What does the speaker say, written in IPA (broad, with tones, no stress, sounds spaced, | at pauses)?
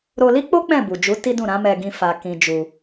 ɾ o˧ l i˦ k͡p o˦ k͡p ɛ̃˦˨ b u˨ d͡ʒ u˨˦ t i˦ d ũ˦˨ ɾ ã˨˦ m ɛ˧ ɡ ĩ˧ f a˨ k ĩ˧ d͡ʒ u˧